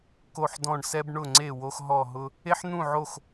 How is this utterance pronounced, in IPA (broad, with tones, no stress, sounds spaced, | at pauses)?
k o˥˧ ħ d ɔ̃˥˧ ɳ s ɛ˥ b ɳ ʊ˥˧ ŋ͡ǀ e˥˧ w o˥ x ɦ ɔ˥˧ ɦ ʊ˥ | e˥ ħ n̪ ũ˥˧ ʕ o˥˧ x